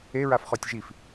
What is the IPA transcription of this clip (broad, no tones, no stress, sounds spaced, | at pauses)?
e ɹ a f χ ɔ tʲ ʒ i f